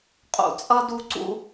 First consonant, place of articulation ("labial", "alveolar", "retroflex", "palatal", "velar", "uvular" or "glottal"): uvular